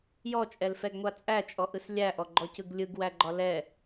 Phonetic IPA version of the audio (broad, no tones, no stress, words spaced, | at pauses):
jɔt͡ʃʼɛlfɛɡŋʷa t͡sʼæt͡ʃʼɔʔɯs lʲæʔɔɡ͡ǃɔcɯɡ lʲɯɡwæɡ͡ǃɒ lɛ